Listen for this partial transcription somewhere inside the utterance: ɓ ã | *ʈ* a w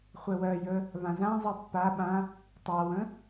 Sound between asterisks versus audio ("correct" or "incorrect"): incorrect